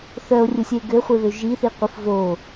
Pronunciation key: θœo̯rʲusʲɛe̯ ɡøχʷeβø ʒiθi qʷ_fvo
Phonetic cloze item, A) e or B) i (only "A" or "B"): B